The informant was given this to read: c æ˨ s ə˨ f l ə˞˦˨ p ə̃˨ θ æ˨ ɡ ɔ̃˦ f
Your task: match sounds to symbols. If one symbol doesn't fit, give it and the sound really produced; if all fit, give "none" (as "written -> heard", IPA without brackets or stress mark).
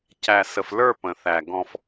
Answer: none